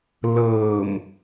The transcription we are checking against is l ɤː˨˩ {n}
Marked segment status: incorrect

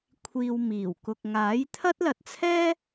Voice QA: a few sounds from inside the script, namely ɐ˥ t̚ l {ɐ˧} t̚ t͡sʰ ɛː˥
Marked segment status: correct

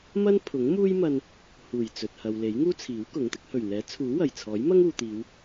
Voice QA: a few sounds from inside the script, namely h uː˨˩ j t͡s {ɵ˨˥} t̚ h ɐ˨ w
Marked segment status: incorrect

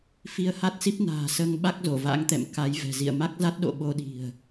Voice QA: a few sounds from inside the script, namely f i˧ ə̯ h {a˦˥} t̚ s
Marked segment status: correct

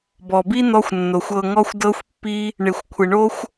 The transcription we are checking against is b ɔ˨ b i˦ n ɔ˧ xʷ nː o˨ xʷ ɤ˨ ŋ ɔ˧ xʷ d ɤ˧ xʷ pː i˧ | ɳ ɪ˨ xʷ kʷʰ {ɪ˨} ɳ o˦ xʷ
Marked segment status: correct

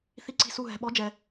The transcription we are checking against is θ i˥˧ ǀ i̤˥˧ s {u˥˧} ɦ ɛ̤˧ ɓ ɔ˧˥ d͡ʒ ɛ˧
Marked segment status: correct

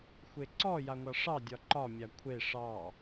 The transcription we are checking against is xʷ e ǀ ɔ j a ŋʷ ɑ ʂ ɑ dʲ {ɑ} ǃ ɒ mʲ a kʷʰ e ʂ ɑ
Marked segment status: incorrect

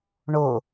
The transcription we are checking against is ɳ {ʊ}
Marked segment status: correct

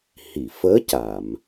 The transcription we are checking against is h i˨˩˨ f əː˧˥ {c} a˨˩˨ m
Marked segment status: correct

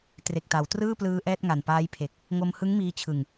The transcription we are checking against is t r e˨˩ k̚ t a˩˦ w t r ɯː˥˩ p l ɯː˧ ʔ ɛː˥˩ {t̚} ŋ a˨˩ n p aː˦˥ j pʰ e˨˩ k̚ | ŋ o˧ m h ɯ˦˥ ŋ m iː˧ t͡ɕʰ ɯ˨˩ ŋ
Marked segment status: correct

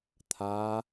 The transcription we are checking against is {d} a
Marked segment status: incorrect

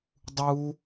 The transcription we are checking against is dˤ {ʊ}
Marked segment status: incorrect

